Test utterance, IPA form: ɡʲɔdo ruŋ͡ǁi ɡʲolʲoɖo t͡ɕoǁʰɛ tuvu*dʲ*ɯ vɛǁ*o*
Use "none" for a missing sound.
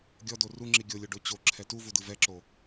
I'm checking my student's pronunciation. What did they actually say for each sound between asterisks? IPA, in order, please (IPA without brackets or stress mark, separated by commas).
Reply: d, o